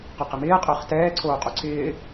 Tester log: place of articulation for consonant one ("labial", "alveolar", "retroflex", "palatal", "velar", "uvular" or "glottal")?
uvular